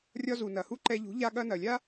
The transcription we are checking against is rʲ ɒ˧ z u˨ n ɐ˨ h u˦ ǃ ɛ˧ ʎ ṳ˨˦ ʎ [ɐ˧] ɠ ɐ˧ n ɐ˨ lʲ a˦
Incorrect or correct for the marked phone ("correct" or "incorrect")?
incorrect